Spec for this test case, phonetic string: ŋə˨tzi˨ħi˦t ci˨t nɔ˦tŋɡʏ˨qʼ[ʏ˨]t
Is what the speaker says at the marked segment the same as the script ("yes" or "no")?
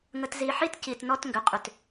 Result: yes